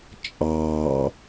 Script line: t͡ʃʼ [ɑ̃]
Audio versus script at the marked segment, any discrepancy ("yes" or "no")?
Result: yes